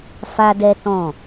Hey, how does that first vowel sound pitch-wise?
high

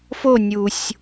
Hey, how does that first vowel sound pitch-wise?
falling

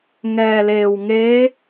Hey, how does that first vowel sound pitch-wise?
low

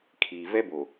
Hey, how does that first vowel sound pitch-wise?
low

